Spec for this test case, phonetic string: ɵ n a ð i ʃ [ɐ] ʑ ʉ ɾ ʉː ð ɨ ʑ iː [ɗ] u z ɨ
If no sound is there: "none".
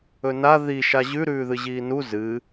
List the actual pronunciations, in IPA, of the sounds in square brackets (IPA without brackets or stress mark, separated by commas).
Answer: a, n